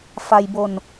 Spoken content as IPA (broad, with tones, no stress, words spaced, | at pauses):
fa˧j bo˧n